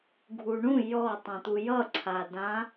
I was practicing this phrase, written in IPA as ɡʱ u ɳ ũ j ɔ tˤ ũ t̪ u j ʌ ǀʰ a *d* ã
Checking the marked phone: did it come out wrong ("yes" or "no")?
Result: no